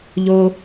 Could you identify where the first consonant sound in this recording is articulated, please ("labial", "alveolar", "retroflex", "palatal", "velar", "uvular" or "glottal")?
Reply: palatal